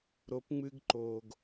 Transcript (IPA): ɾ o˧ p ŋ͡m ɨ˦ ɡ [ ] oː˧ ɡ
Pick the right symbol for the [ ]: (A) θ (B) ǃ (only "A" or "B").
B